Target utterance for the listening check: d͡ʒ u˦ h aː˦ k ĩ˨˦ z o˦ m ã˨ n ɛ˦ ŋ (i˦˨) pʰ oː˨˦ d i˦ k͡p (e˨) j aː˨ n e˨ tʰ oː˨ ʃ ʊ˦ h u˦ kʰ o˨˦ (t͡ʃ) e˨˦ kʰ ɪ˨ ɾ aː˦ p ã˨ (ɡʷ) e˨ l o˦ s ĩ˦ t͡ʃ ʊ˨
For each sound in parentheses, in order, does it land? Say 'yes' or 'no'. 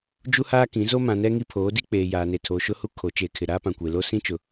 no, no, yes, no

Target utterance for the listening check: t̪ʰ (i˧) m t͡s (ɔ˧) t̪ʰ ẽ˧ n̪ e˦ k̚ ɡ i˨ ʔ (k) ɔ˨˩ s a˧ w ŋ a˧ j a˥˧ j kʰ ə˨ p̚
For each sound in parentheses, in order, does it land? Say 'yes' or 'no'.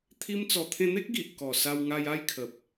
yes, no, yes

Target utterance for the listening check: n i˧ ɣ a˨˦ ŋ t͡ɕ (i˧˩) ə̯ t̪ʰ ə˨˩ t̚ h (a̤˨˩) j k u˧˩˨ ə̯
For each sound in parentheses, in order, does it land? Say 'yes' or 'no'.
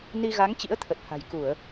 no, yes

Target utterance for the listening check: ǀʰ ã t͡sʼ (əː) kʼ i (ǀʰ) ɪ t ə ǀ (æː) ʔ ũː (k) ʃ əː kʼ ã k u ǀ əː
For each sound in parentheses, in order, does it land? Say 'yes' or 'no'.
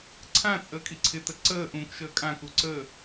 yes, yes, no, yes

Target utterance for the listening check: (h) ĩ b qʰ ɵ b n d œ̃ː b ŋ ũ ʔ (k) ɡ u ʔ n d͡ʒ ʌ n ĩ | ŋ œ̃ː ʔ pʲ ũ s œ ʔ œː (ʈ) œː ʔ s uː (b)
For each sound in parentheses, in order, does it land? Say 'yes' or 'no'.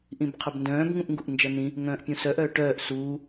no, no, yes, no

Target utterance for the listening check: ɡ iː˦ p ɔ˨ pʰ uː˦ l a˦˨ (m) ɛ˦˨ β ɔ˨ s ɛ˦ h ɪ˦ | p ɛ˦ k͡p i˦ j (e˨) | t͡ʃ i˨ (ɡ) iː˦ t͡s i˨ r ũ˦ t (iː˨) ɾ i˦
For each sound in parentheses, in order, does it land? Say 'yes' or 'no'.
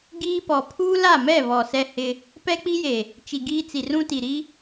yes, yes, yes, no

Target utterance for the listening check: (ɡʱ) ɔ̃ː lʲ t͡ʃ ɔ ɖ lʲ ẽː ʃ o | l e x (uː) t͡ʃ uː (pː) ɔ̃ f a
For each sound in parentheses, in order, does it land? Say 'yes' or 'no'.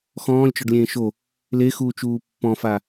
no, yes, yes

